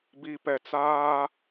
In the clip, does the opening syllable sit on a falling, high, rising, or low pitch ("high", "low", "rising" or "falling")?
low